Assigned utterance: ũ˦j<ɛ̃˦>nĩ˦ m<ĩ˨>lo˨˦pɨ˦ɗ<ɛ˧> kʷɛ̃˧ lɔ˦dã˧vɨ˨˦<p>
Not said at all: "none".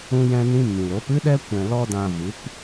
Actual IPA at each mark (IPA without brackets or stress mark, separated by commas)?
ɛ̃˦, ĩ˨, ɛ˦, p